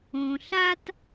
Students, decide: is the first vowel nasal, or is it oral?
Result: nasal